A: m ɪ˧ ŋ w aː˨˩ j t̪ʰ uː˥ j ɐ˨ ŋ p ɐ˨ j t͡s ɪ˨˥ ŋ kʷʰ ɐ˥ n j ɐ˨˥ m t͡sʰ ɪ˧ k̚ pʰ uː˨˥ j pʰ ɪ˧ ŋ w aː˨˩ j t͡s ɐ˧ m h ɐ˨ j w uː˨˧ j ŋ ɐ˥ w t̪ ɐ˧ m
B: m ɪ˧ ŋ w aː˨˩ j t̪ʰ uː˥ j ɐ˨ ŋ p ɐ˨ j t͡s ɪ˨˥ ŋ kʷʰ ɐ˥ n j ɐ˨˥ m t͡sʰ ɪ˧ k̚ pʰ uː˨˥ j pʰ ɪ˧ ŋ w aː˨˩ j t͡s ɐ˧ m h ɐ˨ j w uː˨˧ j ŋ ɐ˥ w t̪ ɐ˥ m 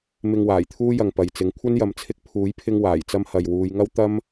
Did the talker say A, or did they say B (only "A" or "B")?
B